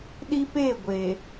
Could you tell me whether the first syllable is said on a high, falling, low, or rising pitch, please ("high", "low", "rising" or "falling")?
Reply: high